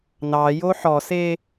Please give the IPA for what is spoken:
n ɑ j o ħ ɔ s e

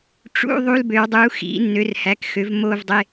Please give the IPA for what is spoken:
ʈ͡ʂ ṵ˧˥˧ ðˤ u˧˥˧ l b ø˨˩˦ w dˤ u˩˥ x ḭ˨˩˦ nː ø˩˥ r h æ˩˥ k x ø˩˥ v m o˦˨ v dˤ e˧˥˧

